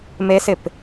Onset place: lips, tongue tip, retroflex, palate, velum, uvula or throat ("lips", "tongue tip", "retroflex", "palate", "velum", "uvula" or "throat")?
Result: lips